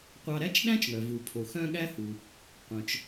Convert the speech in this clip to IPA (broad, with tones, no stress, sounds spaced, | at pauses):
qʷ ɑ˧ ɾ æ˥ t͡ʃ ɗ æ̃˥ t͡ʃ ŋ œ˩ v u˩ pʰ o˩ x œ̃˥ ɠ æ˥ h u˩ | qʷ œ̃˩ t͡ʃ